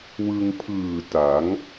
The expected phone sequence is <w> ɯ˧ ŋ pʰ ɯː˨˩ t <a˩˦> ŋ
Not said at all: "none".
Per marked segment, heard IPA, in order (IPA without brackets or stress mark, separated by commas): w, a˩˦